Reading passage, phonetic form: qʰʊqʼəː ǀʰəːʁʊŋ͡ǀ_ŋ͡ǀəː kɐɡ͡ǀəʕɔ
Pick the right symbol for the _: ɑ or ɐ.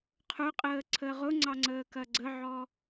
ɑ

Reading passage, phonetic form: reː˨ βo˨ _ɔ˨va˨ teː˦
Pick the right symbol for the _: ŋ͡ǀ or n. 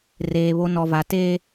n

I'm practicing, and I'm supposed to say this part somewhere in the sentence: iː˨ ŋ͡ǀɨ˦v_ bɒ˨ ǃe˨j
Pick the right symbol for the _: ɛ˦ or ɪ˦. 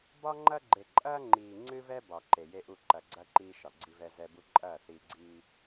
ɛ˦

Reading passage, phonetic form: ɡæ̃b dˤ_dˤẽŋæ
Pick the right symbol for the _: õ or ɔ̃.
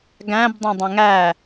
õ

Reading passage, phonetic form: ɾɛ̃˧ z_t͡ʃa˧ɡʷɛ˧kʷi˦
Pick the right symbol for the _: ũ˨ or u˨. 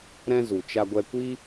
u˨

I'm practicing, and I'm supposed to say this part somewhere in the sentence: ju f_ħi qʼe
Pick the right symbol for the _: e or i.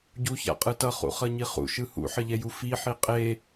i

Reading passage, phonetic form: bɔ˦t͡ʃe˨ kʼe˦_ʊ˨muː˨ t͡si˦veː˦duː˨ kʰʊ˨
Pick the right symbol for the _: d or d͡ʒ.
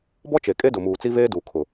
d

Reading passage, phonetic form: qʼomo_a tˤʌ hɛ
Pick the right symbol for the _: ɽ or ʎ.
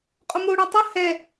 ɽ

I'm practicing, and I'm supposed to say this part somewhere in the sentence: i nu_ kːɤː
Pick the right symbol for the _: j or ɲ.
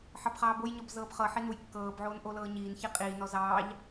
j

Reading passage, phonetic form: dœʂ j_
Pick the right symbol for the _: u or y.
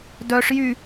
y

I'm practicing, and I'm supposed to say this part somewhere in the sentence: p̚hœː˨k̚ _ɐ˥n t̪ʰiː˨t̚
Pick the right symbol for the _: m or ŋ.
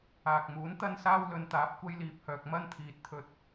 m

